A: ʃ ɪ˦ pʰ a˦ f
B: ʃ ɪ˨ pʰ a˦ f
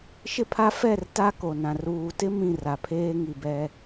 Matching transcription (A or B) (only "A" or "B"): A